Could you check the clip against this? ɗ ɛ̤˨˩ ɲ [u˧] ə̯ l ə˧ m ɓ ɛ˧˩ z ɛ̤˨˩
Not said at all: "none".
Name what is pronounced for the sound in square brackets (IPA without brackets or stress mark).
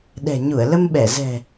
u˧˩